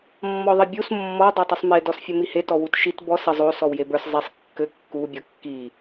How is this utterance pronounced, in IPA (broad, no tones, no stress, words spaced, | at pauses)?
mːɔðˤibʲus mːɔ dˤetˤusˤme dɔsfʲɘmihe tɔwutʃit bɔs ɘ zˤo sɔwjebə˞s zˤisˤ kːɘ kːu bʲɔkːi